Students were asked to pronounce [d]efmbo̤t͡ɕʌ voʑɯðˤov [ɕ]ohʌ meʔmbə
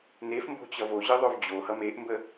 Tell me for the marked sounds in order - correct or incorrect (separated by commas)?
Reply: incorrect, incorrect